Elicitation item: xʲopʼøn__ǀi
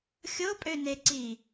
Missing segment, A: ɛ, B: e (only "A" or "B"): B